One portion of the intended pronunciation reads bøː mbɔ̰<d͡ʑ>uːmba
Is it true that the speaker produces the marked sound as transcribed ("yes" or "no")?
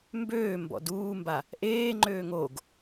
no